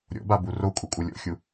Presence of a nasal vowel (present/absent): absent